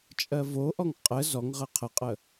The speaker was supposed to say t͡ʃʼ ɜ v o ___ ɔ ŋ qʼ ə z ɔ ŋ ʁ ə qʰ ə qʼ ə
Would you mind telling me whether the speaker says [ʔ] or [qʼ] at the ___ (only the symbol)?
ʔ